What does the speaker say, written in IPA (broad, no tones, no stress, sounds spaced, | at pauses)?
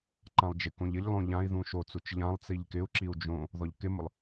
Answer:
ǃ ã lˠ d͡ʒ ɪ k õ ʎ ɪ ʎ lˠ õ ʎ ã i̯ ð ũ ʃ o t͡s u t͡ʃ ʎ ã lˠ t͡s i ʎ k ɪ u̯ ǁ i u̯ d͡ʒ õ | ð ɔ ʎ k ɪ m ʊ lˠ